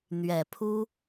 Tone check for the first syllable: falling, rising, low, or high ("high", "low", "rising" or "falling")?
low